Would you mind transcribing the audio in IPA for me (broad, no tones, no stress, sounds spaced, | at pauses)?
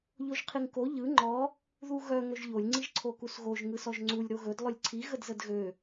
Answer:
ʎ o ʒ qʰ i ŋ k o ʎ ɯ ŋ͡ǃ ɔ | ð u ɣ œ ŋ ɵ ʒ ʎ o lʲ ŋ͡ǀ i ʒ ǀʰ o k u s ɣ o ʒ ŋ ɯ s ɔ ʒ ŋ͡ǀ u lʲ ɾ o ɣ ɵ d lˠ ɵ lʲ ǀʰ i ɣ ə d z ə d ɣ ø